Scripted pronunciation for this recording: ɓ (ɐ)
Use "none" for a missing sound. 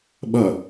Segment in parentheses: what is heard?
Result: ɐ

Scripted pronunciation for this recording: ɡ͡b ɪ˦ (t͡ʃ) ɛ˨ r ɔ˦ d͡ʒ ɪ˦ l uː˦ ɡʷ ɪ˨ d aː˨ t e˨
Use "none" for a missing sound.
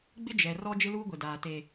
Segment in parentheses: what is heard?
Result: d͡ʒ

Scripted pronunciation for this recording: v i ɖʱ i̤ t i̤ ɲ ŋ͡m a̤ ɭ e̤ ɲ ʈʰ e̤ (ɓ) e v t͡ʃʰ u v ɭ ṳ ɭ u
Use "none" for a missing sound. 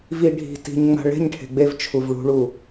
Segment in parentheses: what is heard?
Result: ɡ͡b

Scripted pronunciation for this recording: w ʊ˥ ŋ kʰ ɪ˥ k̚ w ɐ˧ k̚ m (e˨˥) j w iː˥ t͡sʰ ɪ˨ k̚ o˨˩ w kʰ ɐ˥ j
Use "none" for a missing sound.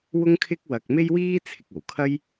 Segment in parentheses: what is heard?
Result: e˥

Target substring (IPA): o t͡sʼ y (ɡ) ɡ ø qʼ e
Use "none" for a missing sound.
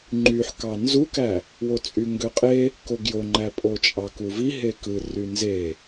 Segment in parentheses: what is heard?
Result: ŋ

